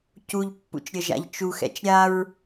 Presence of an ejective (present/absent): absent